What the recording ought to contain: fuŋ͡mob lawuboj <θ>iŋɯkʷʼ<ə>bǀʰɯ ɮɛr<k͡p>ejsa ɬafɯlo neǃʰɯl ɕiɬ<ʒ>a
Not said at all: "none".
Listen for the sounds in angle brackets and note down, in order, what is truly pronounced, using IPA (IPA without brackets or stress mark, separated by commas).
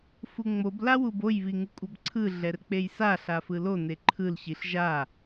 β, ʌ, k͡p, ʒ